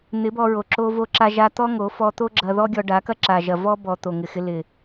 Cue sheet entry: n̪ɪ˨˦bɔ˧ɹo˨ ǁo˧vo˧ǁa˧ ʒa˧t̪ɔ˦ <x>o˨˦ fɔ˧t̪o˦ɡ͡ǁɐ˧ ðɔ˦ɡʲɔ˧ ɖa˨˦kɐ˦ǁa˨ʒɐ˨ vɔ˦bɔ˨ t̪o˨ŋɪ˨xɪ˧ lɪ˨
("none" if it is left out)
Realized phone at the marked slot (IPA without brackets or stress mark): ŋ